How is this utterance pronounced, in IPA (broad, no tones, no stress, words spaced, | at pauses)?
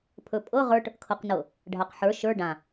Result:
pʰɵpʼɤ ʁə˞ʈ | kʰɤqnɤ | ɖʱaqħə˞ ʃə˞ ɖã